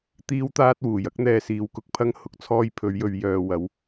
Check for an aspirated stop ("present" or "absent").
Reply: present